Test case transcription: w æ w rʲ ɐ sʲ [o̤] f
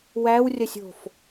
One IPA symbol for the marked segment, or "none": o̤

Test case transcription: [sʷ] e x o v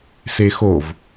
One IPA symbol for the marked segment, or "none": s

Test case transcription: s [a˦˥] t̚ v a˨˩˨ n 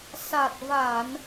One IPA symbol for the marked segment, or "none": a˨˩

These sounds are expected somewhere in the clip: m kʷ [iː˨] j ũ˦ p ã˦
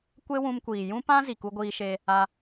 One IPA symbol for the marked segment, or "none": iː˨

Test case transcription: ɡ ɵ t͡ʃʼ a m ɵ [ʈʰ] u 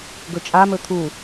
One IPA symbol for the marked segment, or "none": t̪ʰ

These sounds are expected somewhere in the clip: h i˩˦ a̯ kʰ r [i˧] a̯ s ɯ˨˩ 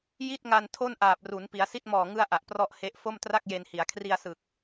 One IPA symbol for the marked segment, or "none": i˧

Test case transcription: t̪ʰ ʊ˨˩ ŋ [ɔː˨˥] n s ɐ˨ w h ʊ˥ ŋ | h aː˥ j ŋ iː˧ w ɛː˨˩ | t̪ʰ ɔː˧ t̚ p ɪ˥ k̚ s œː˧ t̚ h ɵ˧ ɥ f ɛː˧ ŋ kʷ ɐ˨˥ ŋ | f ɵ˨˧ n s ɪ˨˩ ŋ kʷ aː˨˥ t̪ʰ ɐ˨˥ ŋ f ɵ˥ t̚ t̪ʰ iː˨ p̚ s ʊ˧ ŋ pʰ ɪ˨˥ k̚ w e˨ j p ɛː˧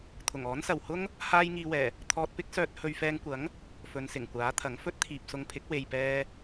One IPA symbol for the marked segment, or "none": ɔː˨˥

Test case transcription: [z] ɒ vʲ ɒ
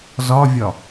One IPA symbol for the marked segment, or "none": z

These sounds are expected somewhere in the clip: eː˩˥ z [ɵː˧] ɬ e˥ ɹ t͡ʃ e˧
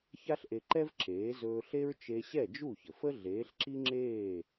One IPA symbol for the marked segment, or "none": ɵː˧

